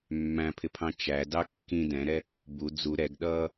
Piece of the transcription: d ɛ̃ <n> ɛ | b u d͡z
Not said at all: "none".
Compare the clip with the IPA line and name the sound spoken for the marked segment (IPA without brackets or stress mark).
ɾ